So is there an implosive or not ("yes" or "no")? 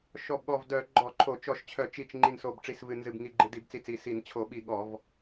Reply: yes